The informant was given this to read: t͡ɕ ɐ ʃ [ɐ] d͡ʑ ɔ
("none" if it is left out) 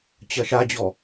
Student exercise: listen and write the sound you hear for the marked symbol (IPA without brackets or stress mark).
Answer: a